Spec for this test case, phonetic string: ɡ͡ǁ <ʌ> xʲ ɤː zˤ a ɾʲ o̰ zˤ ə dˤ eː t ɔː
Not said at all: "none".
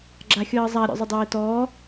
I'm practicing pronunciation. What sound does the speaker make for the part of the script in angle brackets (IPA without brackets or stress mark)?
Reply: a